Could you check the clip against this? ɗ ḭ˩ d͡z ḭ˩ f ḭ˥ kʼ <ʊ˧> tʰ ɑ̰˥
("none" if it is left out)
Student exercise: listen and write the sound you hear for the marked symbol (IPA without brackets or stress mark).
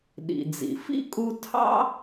u˧